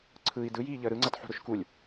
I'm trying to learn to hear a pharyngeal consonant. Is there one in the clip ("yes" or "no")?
yes